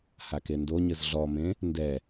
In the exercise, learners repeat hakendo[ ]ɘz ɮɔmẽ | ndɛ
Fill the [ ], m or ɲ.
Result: ɲ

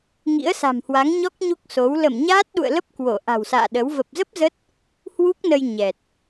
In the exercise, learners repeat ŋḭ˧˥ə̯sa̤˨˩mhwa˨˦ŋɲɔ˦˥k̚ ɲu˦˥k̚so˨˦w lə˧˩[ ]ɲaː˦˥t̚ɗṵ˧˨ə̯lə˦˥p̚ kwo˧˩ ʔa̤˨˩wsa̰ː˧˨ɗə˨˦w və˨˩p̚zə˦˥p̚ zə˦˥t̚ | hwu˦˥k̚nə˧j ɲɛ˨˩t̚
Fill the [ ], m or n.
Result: m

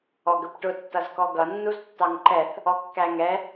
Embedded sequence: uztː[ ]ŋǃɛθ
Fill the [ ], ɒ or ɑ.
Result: ɑ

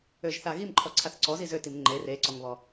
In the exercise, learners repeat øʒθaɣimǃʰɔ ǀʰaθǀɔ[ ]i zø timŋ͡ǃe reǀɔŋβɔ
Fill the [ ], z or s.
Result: z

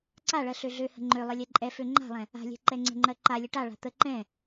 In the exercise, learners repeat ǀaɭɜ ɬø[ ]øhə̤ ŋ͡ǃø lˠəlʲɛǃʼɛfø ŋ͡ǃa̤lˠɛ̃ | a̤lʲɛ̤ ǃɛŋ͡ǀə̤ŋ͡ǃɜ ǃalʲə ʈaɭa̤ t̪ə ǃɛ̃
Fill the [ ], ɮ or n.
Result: ɮ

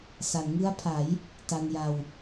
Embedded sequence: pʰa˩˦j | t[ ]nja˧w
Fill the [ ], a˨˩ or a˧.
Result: a˧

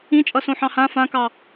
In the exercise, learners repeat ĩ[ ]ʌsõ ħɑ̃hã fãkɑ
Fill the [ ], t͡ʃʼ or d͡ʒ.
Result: t͡ʃʼ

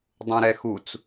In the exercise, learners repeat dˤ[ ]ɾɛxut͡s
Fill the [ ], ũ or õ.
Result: ũ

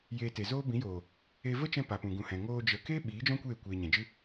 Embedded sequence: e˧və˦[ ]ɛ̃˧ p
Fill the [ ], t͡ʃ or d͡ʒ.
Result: t͡ʃ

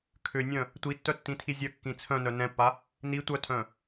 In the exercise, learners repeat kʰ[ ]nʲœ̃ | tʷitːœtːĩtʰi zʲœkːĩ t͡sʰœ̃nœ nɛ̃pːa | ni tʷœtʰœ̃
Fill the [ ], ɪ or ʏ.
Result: ʏ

